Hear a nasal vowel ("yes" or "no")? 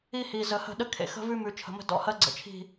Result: no